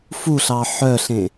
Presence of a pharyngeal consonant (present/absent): present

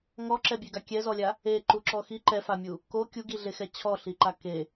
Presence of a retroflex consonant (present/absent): absent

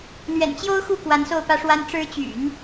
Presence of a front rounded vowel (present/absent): present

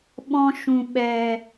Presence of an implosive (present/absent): present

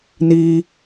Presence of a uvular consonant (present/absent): absent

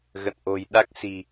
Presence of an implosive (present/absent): present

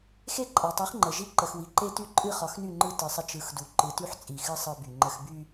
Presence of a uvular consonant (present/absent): present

